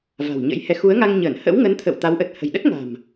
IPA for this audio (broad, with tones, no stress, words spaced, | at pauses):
va̤˨˩wɲə̰˧˥jhɛ˨˦ xu˨˦ə̯ŋa˧ŋɲəː˧˩n hə̰˧˥wŋə˨˦n t̪ʰə̰˧˨w t̪a˨˦wʔə˨˩t̚ hə̤˨˩jɗə˦˥t̚ŋa̤˨˩m